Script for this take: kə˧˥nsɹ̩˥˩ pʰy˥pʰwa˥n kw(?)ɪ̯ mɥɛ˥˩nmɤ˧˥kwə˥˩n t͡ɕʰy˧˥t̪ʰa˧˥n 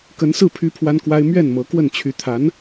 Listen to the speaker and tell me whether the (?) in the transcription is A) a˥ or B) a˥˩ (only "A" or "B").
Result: A